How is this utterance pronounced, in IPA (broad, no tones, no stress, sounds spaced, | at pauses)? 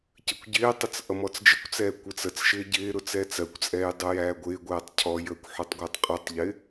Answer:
c ə kʷ ɟ ɪː tˤ ə t͡s ʔ ʌ m ɔ t͡s d͡ʒ ɪ kʷ t͡s ɛː kʷ ɪ t͡s ə t͡s ʃ ɪː ɟ ɪː ɾ ʊ t͡s ɛː t͡s ɜ kʷ t͡sʼ ɛː j dˤ u j æː ɡʷ ɪː ɡʷ ɛː tˤ cʰ ɔ j əː kʷ ħ u tˤ ɡʷ ɪː tˤ qʼ u tˤ ʎ ɪ